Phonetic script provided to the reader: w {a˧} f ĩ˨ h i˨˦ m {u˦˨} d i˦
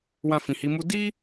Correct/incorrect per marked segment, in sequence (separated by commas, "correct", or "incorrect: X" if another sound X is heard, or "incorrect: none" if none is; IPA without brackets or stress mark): incorrect: ã˧, incorrect: u˦